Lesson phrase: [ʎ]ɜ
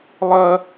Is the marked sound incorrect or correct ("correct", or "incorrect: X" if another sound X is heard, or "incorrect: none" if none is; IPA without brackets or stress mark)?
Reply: incorrect: lˠ